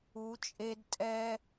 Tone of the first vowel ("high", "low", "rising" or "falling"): rising